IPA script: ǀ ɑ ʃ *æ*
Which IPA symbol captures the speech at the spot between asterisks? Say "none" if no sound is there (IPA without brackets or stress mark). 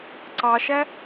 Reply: æ